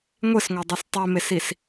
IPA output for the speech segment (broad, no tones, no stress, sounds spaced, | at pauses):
ŋʷ e s ŋʷ a dˤ u s tˤ e m e s i s